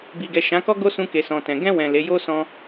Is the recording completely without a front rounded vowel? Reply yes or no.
yes